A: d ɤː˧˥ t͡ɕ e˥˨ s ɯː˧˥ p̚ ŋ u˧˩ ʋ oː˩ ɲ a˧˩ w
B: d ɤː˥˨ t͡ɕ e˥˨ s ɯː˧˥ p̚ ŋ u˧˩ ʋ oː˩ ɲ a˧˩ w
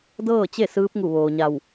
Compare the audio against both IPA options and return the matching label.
B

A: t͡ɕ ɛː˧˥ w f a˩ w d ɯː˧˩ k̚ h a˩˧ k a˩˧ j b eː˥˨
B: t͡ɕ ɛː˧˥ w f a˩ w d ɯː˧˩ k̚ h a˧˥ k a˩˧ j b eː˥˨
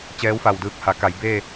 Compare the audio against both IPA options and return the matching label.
A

